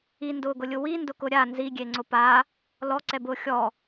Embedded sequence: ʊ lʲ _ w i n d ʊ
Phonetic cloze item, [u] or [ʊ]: ʊ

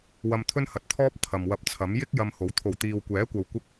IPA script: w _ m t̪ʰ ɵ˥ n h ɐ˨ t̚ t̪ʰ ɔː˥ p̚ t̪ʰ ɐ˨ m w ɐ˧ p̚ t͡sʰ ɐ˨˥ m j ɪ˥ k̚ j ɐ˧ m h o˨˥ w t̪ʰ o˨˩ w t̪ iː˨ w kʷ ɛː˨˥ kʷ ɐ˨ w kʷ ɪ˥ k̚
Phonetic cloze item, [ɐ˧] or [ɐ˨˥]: ɐ˧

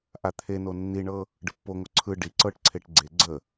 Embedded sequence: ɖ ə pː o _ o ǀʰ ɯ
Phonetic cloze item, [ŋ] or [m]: ŋ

